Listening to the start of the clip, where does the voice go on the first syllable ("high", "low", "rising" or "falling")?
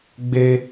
high